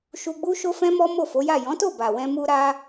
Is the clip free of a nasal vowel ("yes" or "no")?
no